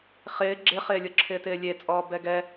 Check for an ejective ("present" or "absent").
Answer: present